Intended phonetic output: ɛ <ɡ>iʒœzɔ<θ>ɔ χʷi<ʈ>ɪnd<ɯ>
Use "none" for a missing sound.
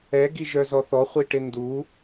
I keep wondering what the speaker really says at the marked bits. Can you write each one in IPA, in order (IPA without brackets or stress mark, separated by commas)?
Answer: ɡ, θ, ʈ, u